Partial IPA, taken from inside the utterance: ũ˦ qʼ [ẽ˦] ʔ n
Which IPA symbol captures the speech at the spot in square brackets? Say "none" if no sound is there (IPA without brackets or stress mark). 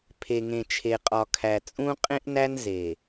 ẽ˦